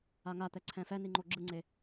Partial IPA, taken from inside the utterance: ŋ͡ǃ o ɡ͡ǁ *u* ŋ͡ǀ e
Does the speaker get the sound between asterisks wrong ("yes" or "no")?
yes